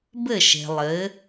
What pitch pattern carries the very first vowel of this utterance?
falling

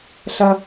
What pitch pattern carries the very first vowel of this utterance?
low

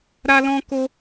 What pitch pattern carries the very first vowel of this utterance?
high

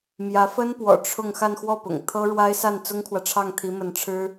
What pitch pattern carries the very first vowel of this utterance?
rising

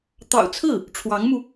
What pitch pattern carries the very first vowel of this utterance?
low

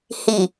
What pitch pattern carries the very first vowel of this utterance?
low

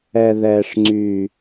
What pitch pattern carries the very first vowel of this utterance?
low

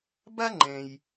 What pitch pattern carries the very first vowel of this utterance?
high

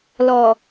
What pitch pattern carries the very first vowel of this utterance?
low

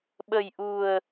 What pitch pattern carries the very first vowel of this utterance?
low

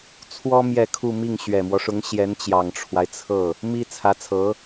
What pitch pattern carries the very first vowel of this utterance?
high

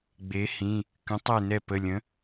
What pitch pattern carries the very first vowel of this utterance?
rising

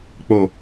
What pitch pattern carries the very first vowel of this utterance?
low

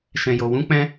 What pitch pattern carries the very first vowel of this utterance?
low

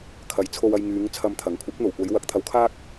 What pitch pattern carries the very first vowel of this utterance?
rising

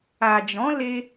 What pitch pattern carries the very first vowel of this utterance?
low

